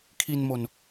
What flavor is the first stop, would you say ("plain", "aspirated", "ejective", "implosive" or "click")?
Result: aspirated